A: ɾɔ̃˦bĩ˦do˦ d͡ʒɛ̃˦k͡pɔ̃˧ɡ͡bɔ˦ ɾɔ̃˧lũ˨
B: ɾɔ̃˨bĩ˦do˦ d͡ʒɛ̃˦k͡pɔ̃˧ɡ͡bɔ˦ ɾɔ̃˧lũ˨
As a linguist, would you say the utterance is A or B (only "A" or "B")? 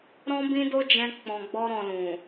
A